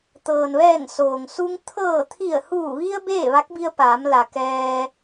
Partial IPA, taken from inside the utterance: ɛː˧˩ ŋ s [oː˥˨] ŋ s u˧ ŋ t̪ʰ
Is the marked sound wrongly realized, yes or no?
yes